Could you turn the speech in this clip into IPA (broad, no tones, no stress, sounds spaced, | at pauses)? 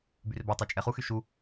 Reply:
b y r b a tˤ y t͡ʃʼ ɛ χ u x y ʃ u